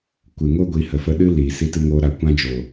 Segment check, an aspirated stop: absent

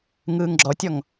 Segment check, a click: present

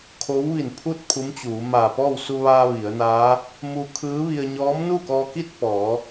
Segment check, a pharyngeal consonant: absent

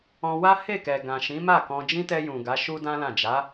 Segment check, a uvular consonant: absent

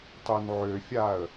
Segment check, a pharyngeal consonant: present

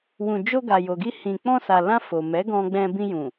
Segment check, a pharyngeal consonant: absent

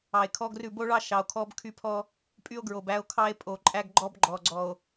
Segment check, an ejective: present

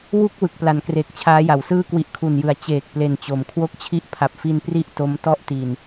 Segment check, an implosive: absent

